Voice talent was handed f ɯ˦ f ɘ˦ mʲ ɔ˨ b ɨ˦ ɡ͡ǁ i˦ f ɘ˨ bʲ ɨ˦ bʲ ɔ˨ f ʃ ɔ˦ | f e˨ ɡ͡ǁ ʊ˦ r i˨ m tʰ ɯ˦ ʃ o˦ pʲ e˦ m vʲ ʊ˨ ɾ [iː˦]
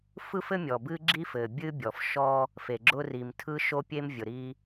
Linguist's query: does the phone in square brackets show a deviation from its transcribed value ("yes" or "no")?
yes